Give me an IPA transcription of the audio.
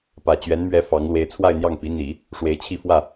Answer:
p ä˨˩ t͡ɕ ɥ ɛ˧˥ n m ɥ ɛ˧˥ f ɑ˧˥ ŋ l w e˧˥ ɪ̯ t͡sʰ w a˥˧ ɪ̯ n̪ j ɑ˥˩ ŋ p i˧˥ n̪ i˨˩˦ | ʂ w e˧˥ ɪ̯ t͡ɕʰ i˥˧ f w ä˥˩

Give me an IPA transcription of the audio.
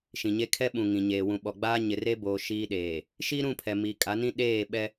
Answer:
ʃ ĩ˨ ɲ e˦ kʰ ɛ˦ ɓ ũ˨ ŋ ĩ˨ ɲ eː˨ w ũ˨ ɓ ɔ˨ ɡ͡b aː˦ ɲ ɪ˨ r e˦ b oː˨ ʃ iː˦ ɗ eː˨ | ʃ i˦ ɾ ũ˦˨ pʰ ɛ˨ m i˨ kʼ a˨˦ n ĩ˦ ɗ eː˦˨ ɓ ɛ˦

